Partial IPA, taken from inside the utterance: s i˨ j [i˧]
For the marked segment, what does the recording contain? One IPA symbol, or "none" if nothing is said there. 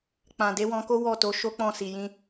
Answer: ĩ˧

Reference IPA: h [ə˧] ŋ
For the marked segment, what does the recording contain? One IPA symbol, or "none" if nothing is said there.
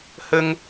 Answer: ə˧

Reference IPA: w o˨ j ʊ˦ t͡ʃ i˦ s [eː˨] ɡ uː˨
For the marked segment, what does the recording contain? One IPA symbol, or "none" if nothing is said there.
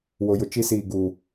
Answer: iː˨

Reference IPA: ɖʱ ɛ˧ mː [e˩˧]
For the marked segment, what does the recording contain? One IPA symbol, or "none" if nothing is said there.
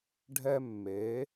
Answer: e˩˧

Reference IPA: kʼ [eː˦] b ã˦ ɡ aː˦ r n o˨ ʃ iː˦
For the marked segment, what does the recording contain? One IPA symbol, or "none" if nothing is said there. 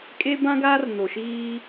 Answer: e˦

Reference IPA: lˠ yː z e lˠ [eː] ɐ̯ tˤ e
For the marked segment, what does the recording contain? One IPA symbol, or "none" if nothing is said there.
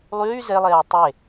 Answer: eː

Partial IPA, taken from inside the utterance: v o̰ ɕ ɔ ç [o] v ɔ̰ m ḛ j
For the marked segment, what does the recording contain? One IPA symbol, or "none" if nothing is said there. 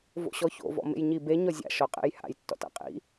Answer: o̰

